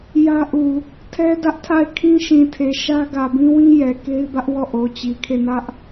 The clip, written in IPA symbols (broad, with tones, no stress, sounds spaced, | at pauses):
j ä˦ ʔ u˨ | tʰ ɛ˦ d ä˦ ʔ tʰ a˦˨ ɪ̯ kʰ ĩ˦ ʃ ĩ˨ tʰ e˨ ʃ ä˦ ɡ ä˨ b ĩ˦ w ĩ˦ j ɛ˨ k e˦ ɪ̯ b ä˦ ʔ w ɔ˦˨ ʔ o˨ t͡ɕ i˨ kʰ e˦˨ n ä˦ ʔ